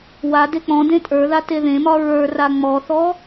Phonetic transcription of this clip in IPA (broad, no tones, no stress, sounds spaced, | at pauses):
w a d e k͡p ɔ̃ d ẽ tʼ ə˞ ð a t e ð ẽ m ɒ ɹ ə˞ r a ŋ͡m ɔ θ ɔ